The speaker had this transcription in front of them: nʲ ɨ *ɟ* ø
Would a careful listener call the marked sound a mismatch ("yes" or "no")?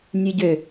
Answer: no